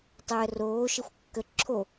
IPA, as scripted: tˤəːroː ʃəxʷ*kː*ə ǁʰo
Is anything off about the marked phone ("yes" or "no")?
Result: no